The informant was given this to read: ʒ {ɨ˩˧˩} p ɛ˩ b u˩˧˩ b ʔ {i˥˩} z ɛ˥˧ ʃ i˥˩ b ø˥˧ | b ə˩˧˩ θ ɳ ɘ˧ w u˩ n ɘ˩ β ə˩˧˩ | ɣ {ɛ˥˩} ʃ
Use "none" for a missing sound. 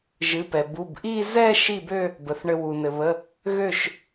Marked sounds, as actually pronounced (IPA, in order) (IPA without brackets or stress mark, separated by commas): ɨ˩˧˩, i˥˧, ø˥˩